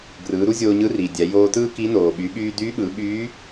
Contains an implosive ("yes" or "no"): yes